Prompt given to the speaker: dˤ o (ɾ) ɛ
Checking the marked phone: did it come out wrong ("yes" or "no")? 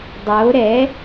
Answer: no